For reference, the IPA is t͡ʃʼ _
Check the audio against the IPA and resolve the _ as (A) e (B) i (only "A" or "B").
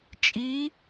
B